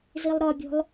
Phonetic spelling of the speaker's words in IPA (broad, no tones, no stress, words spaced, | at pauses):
zilˠɾɒbʲo̤lˠ